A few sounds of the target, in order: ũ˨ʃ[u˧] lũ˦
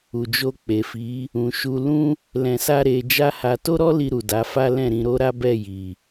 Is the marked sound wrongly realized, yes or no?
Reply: no